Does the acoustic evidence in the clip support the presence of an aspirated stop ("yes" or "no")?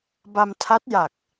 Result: yes